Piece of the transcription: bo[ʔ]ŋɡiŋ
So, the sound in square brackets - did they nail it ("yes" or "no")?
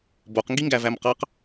no